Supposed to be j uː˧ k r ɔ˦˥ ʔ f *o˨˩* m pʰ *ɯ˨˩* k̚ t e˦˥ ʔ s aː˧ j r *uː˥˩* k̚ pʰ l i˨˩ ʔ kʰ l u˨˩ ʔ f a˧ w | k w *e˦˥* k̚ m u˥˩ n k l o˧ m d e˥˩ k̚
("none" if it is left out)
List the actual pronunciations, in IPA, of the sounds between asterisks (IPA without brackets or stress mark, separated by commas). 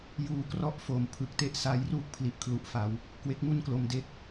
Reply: o˨˩, ɯ˨˩, uː˥˩, e˦˥